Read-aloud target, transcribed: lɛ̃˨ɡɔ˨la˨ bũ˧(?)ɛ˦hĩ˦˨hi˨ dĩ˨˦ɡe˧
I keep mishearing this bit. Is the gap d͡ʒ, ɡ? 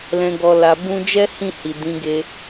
d͡ʒ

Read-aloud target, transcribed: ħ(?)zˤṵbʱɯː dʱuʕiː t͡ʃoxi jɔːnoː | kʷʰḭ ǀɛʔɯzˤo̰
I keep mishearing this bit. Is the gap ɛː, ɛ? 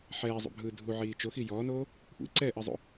ɛː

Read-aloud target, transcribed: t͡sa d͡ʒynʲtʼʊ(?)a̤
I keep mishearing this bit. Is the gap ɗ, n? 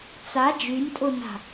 n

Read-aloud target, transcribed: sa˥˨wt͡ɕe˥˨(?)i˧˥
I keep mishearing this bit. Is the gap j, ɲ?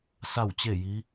j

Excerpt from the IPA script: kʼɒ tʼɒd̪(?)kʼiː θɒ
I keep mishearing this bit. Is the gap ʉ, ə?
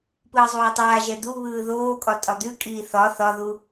ʉ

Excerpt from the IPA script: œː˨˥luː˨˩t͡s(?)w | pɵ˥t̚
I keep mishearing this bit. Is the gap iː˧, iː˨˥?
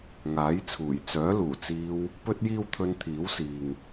iː˧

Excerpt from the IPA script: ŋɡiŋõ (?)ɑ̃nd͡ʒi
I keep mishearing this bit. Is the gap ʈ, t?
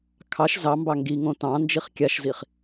t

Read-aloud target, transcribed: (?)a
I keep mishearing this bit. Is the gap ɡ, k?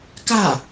k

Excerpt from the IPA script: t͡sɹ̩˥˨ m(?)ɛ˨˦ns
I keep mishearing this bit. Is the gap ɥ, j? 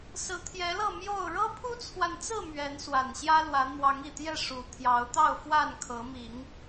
ɥ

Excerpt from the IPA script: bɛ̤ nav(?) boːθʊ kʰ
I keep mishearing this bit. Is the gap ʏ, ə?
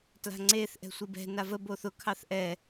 ə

